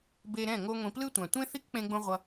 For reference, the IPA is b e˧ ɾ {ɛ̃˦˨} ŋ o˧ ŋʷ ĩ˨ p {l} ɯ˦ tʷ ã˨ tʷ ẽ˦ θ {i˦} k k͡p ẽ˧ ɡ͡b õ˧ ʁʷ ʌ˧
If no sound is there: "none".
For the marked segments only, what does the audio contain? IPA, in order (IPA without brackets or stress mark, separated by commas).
ɛ̃˦˨, l, i˦